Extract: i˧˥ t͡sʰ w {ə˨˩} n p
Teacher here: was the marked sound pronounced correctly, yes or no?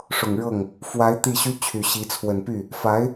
yes